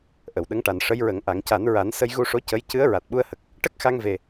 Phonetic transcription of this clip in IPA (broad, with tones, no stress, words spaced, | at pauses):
ʔə˨˩˨wɗə˧˥ŋʈa˨˩n ʂə˧˥jɹə˨˩˦ŋ ʔa˨˩˨ŋca˨˩˦nɹa˨˩˦n sə˧jɣu˧ʂo˧˥ cə˧˥j cɨ˧˥ə̯ ɹa˨˩t̚ɓu˧ə̯hə˨˩k̚ | ʈə˦˥k̚xa˧ŋve˨˩